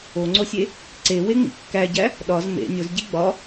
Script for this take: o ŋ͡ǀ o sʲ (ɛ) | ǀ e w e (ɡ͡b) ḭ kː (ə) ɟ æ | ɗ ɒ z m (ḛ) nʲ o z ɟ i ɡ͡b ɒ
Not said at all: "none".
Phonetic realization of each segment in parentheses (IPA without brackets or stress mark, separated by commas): e, ŋ͡m, æ, ḛ